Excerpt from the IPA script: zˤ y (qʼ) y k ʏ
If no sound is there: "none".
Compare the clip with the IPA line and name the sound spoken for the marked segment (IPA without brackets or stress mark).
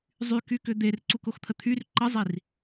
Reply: k